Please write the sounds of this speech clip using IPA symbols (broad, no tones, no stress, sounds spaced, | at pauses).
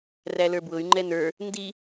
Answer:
r æ l ə˞ b w ʊ y̯ ŋ͡ǃ ɛ n ə˞ | n d i